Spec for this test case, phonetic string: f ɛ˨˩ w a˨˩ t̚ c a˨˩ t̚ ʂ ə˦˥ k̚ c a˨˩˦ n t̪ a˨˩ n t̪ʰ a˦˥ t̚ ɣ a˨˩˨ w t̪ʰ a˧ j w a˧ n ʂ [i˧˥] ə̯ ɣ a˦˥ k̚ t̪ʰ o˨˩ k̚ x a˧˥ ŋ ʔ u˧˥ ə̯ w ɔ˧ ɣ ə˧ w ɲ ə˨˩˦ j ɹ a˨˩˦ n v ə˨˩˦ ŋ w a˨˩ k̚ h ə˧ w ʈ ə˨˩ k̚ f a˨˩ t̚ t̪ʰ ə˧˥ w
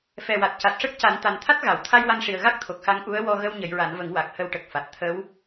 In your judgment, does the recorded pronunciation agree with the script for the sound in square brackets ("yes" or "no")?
no